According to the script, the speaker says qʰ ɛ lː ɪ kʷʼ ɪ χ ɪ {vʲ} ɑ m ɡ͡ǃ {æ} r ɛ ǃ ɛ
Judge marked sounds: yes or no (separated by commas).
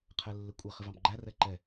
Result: no, yes